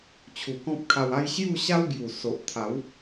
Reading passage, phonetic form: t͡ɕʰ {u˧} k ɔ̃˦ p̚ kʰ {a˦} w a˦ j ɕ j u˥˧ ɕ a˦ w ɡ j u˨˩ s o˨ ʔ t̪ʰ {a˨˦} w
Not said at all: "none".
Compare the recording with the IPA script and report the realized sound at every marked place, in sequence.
u˨˩, a˧, a˨˦

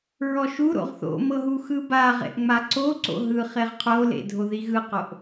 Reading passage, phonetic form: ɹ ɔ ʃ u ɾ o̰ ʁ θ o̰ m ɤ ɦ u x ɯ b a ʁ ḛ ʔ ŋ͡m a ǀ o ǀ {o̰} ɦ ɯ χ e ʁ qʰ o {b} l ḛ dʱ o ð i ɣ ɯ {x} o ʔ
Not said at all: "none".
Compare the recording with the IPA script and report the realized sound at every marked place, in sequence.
o̰, none, q

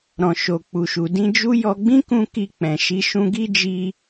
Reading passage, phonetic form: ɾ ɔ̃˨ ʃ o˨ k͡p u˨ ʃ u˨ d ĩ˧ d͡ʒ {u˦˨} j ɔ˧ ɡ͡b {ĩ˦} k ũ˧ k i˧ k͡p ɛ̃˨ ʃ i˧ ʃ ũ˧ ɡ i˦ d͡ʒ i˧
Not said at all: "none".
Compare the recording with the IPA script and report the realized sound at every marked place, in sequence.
u˦, ĩ˦

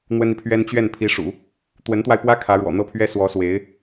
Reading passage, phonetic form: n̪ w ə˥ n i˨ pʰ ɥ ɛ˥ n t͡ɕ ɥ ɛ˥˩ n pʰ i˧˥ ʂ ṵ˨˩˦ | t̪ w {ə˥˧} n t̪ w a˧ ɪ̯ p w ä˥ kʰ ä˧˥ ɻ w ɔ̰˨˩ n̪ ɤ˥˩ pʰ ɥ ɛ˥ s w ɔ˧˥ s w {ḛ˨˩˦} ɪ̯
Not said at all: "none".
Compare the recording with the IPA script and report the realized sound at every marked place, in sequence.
ə˧˥, e˧˥

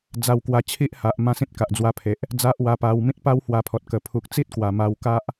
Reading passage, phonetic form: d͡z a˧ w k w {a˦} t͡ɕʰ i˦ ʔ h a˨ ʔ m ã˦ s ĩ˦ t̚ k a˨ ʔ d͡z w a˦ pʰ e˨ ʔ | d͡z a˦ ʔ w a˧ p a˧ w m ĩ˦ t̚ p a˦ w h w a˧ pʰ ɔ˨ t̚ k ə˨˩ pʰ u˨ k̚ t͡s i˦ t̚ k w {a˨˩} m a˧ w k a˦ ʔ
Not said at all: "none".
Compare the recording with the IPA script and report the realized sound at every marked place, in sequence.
a˧, a˨˩

